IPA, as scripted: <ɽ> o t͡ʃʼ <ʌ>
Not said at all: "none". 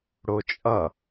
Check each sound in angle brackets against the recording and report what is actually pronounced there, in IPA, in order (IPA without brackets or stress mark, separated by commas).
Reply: ɽ, ʌ